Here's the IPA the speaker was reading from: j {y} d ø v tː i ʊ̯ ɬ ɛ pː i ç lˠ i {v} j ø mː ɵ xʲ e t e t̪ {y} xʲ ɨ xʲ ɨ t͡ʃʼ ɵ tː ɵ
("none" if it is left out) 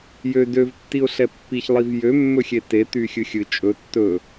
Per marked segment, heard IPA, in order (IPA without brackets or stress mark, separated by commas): ø, v, y